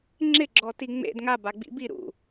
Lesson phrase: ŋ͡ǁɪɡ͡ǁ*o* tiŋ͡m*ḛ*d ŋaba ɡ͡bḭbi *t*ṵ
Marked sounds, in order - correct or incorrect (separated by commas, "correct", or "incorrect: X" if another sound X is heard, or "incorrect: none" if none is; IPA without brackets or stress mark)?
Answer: incorrect: ɔ, correct, incorrect: ɾ